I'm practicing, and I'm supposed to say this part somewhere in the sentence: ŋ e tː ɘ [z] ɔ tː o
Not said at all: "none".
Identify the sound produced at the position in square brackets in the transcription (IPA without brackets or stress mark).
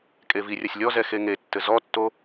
z